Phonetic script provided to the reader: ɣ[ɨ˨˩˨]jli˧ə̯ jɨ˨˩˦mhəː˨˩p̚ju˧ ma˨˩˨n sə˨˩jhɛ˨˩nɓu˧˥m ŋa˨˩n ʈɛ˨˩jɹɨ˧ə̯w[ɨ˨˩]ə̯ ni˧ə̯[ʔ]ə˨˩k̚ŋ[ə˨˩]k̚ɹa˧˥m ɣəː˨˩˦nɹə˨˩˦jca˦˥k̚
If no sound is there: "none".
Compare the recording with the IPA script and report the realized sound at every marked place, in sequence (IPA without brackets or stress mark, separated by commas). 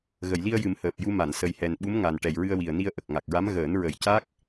ə˨˩˨, i˨˩, ʔ, a˨˩